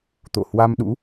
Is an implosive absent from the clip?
no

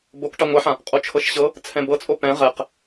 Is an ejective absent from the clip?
no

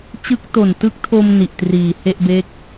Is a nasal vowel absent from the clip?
yes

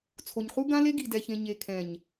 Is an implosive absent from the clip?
yes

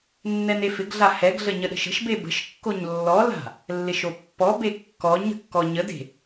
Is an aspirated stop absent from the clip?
yes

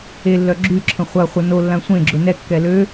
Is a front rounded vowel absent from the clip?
no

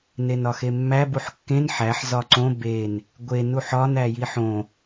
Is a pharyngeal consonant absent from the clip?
no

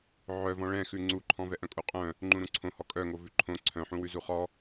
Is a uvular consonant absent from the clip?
no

